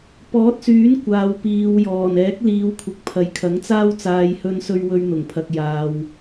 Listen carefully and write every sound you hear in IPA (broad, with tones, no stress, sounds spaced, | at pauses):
p ɔː˨˥ t̚ s yː˨˥ n kʷ aː˨ w p iː˨ w j ɔː˨˩ n ɛː˨˥ k̚ l iː˨˧ w kʷʰ ɪ˨ k̚ pʰ ɐ˨˧ j kʰ ɐ˨˥ ŋ t͡s aː˥ w t͡s aː˧ j h ɵ˧ n s ɵ˧ ɥ w ɵ˧ ɥ n̪ ʊ˨˩ ŋ pʰ ɐ˨ k̚ j aː˨ w